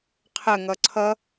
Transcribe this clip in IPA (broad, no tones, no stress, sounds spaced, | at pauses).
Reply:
qʰ ə ŋ ʌ ǀʰ ʌ